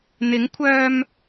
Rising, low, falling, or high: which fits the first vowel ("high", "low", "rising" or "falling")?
rising